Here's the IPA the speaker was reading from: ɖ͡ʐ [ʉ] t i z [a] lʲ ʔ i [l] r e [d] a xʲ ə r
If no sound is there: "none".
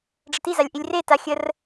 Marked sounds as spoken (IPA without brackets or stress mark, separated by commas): ə, a, lʲ, t